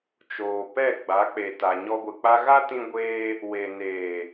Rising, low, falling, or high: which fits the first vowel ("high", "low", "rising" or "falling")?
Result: low